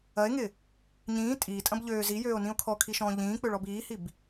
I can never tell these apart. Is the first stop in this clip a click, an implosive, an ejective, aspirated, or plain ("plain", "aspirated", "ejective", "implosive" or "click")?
ejective